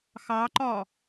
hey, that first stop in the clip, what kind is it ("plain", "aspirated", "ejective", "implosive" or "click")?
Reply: click